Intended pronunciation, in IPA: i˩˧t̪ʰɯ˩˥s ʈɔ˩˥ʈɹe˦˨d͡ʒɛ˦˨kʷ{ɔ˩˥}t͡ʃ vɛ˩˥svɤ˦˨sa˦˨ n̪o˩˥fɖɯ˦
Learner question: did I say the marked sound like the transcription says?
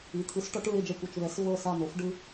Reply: no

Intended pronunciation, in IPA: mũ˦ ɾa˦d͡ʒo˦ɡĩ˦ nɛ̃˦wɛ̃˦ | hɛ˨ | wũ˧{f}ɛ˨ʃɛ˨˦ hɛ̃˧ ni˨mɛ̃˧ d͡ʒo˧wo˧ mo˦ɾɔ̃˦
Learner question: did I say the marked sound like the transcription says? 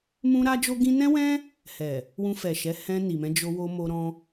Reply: yes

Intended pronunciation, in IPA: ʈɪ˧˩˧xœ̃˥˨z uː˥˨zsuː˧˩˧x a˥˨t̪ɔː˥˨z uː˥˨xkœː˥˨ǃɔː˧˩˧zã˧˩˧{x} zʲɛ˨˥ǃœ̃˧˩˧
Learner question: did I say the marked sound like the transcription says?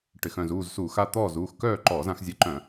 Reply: yes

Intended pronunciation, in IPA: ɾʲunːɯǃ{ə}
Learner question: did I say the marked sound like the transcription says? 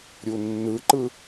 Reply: no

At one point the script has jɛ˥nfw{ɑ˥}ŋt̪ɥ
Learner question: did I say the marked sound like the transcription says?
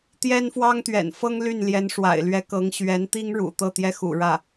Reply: yes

